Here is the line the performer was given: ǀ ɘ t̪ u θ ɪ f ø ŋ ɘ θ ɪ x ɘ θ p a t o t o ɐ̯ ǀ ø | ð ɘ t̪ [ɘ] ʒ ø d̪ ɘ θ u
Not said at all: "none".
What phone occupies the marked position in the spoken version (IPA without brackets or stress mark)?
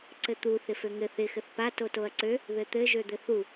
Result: ɘ